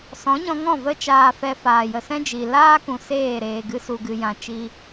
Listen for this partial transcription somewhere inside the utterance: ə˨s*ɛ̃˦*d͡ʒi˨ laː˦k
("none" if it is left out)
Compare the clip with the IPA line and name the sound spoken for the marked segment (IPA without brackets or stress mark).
ɛ̃˦